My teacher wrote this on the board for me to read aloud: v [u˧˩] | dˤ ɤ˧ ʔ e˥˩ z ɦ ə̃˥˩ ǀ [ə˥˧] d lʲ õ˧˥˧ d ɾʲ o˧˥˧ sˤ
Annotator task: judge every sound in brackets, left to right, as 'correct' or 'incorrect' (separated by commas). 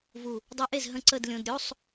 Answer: correct, correct